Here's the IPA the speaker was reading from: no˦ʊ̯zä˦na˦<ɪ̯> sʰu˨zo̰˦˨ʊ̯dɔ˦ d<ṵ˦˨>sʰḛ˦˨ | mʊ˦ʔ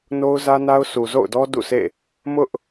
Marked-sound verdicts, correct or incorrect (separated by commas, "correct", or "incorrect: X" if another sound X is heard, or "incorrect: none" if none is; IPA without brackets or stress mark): incorrect: ʊ̯, correct